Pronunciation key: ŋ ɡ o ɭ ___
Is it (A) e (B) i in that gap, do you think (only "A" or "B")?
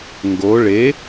A